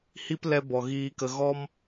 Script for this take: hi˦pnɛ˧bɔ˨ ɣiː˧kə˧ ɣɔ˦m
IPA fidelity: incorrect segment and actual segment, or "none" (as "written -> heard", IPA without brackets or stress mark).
n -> l